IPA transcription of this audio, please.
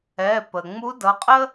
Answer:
ɛ˩˧˩ p ə˩ ŋ͡m u˧˥ d ʌ˩˧˩ qʼ ə˥

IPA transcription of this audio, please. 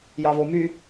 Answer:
j ɑ β o m y

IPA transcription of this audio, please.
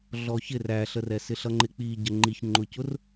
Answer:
ɮ ɔ ç ɪ r æ ɬ ə r ɛ s ɪ ɬ ʌ ŋ͡ǃ ɪ k͡p i ɟ ə ŋ͡ǃ i ç ŋ͡ǃ ʊ c ʊ r

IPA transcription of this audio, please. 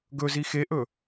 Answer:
ɡ ɵ z i x e ʔ ɵ

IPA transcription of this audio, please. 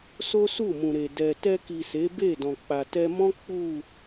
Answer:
s o˦ s u˦˨ m ũ˨ ɾ e˨ d ɛ˨ t ɛ˧ k i˨ s e˨˦ b e˦˨ d ɔ̃˨ k͡p a˨ t ɛ˧ m ɔ̃˦ k͡p u˦˨

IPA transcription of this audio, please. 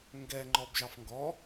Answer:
ŋ ɡ ɛ ŋ͡ǃ ɔ b ʒ ɑ f ŋ ɡ ɔ

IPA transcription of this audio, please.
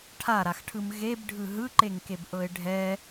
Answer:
ʈʰ a ɾ a x ʈʰ ɯ m ɣ e b ɖʱ ɯ ɦ ɯ ǃ e ŋ k e b ʔ ɤ ɪ̯ ɖʱ ɛ

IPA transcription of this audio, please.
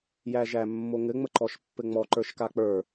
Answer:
j æ ʒ æ mː o ŋ ɘ ŋ͡m ə ǃ ɔ ʃ pː ɘ ŋ͡m ɔ ǃ ə˞ ʃ k a k͡p ə˞

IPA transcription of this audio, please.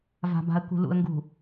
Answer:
v a̤˨ b a̤˨ ə̯ k ṳ˨ l ṵ˨ ə̯ ŋ ɡ ṳ˨

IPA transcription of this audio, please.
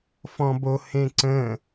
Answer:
f ɔ̃ b o h ẽ ǀ ə̃

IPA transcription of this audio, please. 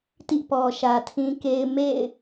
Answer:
t ḭ˦˨ p ɔ˨ ʃ ä˨ tʰ ĩ˦ k e˦ ɪ̯ m ḛ˦˨ ɪ̯

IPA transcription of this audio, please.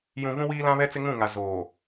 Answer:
j ũ˨ v ũ˦ w iː˦ l ã˦ β ɛ˦ t͡s ɪ˦ ŋ ũ˦˨ ŋ a˨ z oː˨

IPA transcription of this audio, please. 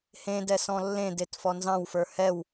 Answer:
h ẽ d ɛ s ɔ̃ lː ẽ d e t f ɔ n z ɑ̃ w f ə˞ h ɛ w

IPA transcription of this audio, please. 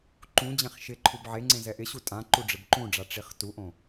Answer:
ǃ ũ d͡ʑ ẽ χ ʃ ɪ ǃʰ u b ʕ e ŋ͡ǀ ẽ z ɛ ʔ ɪ ɕ u tʼ ã ǃ u ɖ͡ʐ ɪ b ǃ ũ ɖ͡ʐ a ʈ͡ʂ i χ t u ʔ õ

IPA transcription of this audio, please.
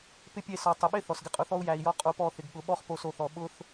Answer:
p ɪ˦ pʲ e˦˨ s ɔ˨ tˤ ɪ˨ ɓ ɪ˦ θ ɔ˨ s ɡ ɪ˧ qʼ ʊ˧ θ ɔ˦ u̯ j æ˨ i̯ j ɔ˧ qʼ o˧ p ɔ˦˨ θ ɪ˨ ɡ ɠ ʊ˨˦ ɓ ɔ˦ χ p o˧ s o˨ θ ɔ˨ ɓ ʊ˧ θ

